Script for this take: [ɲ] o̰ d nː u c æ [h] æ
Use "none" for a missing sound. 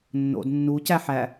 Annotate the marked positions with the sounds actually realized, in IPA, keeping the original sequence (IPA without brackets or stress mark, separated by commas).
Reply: nː, ħ